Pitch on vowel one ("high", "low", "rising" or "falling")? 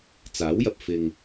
rising